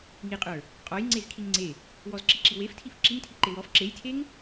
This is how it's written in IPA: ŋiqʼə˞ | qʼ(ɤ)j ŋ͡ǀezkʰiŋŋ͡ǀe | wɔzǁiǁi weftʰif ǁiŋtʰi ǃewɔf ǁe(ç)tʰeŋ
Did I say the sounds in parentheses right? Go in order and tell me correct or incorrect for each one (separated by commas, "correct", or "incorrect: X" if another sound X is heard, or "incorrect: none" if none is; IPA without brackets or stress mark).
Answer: incorrect: ɔ, incorrect: j